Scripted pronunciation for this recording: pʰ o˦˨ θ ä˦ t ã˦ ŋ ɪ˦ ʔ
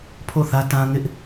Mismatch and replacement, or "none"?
none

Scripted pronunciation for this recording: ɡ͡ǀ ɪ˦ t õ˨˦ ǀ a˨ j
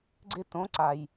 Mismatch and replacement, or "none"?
none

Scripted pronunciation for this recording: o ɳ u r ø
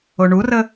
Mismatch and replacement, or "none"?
ø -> ə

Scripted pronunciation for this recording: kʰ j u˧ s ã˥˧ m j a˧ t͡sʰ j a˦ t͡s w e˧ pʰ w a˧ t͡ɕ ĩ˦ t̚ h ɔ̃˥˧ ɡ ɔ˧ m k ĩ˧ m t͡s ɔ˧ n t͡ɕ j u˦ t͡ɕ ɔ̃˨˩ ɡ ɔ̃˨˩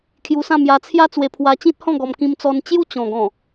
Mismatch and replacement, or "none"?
none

